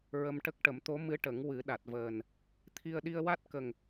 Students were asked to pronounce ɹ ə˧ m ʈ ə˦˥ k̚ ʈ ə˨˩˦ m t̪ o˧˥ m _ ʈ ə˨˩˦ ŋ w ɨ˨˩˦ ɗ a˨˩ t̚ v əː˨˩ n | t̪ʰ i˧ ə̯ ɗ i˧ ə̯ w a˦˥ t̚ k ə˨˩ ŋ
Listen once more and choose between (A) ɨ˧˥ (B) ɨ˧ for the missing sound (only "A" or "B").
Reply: A